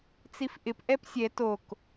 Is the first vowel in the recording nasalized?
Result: no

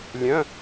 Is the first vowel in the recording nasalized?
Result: yes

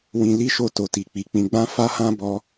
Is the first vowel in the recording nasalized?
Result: yes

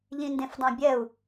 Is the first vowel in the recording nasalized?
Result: yes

